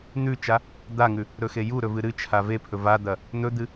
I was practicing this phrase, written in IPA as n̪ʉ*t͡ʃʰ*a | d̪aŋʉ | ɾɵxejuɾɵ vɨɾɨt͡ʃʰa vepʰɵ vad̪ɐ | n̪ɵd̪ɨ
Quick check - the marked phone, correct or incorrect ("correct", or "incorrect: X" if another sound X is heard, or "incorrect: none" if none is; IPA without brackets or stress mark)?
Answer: incorrect: t͡ʃ